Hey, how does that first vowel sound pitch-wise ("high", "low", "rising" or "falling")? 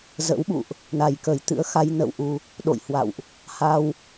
rising